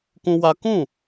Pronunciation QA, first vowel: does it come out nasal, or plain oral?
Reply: nasal